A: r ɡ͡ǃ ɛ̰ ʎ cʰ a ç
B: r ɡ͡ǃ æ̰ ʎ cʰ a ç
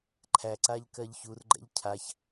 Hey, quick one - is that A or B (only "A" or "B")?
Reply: A